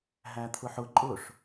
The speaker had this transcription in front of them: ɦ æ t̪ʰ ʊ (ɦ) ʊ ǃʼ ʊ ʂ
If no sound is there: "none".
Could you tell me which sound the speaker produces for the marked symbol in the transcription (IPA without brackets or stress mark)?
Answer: ħ